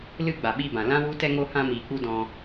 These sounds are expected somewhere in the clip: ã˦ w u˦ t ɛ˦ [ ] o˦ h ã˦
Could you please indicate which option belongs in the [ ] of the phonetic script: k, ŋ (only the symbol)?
ŋ